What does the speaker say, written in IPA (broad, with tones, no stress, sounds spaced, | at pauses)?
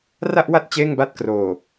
r a˥˩ ʔ w a˥˩ t̚ t͡ɕ eː˥˩ ŋ b a˥˩ t̚ k r oː˨˩